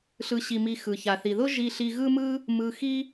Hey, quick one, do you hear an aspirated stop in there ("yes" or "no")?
no